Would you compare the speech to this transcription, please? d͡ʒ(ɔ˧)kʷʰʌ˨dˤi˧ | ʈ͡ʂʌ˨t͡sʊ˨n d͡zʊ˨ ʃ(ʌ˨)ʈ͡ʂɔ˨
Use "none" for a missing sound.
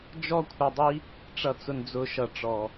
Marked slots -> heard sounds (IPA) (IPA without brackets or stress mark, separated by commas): ɔ˧, ʌ˨